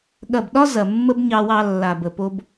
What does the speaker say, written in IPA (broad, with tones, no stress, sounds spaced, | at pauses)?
ɠ ɐ˦˨ b ɗ ɒ˦ z ɐ˨ mː ə˦ b ɲ ɑ˧ w ɑ˧ lː a˨ b ə˨ p o˦ b